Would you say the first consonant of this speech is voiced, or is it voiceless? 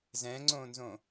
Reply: voiced